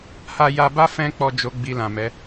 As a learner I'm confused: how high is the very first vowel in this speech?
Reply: low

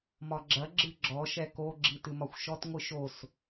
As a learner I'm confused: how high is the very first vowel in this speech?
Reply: low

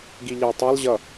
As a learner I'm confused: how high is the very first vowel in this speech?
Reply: high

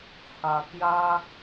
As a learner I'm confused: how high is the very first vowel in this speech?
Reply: low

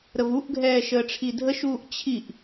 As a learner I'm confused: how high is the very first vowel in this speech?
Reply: mid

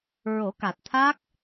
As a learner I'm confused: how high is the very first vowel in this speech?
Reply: mid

